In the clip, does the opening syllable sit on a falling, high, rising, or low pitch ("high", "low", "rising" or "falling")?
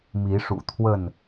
rising